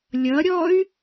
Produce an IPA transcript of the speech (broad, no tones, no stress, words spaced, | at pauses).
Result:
lʲʌɾʲɔy̯